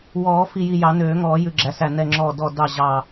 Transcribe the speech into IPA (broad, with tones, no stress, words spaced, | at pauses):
wɔː˨˩˦ fi˧˩ji˧˩ jɑ˨˩˦nøː˨˩˦ŋɔː˨˩˦ jʉ˧˩ɡ͡ǁæ˨˩˦sæ˧˩ nɛ˧˩ŋ͡ǁɔː˧˩ dɔ˧˩ dɑ˧˩ ʑɑ˧˩